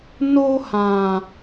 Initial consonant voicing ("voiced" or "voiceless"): voiced